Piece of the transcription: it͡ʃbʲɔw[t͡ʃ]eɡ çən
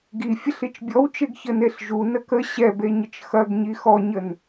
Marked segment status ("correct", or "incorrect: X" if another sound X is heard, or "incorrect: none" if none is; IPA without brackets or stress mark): correct